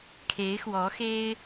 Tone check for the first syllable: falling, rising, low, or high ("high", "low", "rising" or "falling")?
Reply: rising